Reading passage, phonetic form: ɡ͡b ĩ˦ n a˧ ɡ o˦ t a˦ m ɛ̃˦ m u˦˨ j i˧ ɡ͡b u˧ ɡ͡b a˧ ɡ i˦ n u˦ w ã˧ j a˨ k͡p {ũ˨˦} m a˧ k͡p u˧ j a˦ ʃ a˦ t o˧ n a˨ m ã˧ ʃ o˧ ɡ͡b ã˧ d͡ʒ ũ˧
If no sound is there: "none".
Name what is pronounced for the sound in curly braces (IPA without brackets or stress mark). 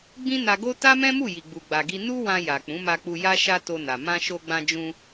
ũ˨˦